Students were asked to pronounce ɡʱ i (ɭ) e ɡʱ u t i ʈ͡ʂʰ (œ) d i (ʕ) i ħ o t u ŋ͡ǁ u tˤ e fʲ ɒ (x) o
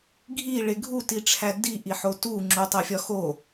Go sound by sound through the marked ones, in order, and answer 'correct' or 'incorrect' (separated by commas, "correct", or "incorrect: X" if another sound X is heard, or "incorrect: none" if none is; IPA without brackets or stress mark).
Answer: correct, incorrect: æ, incorrect: ʔ, correct